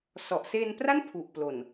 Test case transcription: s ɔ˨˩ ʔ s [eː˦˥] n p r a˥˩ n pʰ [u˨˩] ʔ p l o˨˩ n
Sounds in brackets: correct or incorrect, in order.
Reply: incorrect, correct

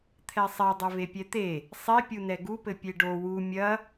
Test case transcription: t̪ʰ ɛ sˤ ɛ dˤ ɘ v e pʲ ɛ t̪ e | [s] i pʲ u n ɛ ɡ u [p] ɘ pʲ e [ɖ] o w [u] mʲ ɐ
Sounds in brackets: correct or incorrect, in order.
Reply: incorrect, correct, correct, correct

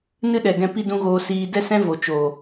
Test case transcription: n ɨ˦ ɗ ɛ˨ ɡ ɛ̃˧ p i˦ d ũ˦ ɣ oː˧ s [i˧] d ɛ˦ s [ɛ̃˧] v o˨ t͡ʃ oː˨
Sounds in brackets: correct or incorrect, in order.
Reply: incorrect, incorrect

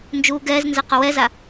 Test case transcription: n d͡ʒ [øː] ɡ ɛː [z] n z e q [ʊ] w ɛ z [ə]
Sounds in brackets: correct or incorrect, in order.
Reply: incorrect, correct, correct, incorrect

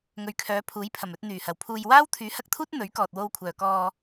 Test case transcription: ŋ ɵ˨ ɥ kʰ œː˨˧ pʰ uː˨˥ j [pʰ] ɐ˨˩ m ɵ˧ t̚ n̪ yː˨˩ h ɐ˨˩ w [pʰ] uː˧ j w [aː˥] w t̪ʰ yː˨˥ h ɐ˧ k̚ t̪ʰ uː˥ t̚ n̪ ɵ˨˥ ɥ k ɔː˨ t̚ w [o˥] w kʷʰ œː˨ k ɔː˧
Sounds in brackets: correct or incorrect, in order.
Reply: correct, correct, correct, incorrect

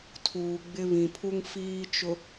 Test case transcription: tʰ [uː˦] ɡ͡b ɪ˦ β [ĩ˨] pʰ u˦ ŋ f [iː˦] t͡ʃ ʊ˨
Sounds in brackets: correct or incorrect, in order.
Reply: incorrect, correct, correct

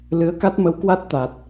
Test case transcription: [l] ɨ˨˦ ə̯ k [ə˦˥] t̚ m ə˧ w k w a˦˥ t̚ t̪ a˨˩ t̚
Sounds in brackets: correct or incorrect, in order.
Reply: correct, incorrect

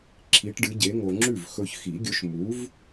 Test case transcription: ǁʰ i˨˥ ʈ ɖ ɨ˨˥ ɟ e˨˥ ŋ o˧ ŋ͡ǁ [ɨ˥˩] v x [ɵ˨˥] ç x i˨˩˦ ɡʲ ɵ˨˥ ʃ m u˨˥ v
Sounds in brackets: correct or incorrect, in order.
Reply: incorrect, incorrect

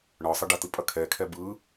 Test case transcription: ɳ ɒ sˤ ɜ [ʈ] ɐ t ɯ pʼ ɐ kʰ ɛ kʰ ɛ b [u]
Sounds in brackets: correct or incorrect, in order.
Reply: incorrect, incorrect

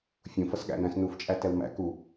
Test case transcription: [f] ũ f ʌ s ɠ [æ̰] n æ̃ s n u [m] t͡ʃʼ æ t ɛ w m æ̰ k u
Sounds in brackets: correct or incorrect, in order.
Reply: incorrect, correct, incorrect

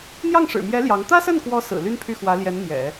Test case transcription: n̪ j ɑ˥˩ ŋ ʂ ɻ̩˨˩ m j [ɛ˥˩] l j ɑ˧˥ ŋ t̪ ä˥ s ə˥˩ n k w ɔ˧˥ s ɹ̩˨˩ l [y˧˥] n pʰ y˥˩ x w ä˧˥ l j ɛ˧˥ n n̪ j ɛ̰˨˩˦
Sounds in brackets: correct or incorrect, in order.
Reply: incorrect, incorrect

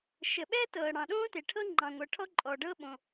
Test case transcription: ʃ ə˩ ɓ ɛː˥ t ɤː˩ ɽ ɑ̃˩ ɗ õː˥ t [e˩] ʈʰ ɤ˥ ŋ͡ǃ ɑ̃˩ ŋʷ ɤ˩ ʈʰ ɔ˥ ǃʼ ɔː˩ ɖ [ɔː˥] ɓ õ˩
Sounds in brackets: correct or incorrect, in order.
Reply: correct, incorrect

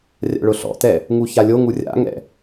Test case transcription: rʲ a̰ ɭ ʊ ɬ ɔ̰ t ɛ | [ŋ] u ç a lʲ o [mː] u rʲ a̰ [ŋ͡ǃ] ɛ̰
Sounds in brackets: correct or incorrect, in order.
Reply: correct, incorrect, incorrect

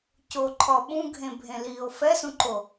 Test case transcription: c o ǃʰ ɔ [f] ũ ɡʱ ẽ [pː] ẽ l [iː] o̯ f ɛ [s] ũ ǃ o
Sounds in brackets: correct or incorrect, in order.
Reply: incorrect, incorrect, correct, correct

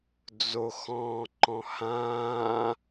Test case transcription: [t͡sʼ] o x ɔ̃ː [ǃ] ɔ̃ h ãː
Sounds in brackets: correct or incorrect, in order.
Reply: incorrect, correct

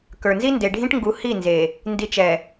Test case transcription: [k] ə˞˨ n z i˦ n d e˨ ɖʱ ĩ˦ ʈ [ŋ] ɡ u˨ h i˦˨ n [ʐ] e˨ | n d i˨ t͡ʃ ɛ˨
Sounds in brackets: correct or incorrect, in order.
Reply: correct, correct, incorrect

